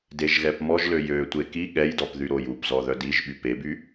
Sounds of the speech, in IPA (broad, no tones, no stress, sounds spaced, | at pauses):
d e ʒ ɣ ɛ p m ɔ ʒ l ø j ø tʷ e k i ɠ ɛ j d ɔ p ð y ɾ o j u p z ɔ ð œ d i ʒ ɓ y p e b y